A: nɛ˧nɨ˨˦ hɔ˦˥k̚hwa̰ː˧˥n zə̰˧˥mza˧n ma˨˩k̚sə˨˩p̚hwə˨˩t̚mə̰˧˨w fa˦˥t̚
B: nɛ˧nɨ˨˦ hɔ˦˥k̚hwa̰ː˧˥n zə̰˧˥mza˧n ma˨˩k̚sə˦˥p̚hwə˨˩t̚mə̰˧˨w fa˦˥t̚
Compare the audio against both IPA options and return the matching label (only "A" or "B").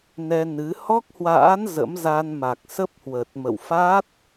B